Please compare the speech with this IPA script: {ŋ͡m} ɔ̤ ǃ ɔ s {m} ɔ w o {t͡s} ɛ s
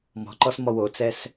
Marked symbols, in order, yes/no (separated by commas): no, yes, yes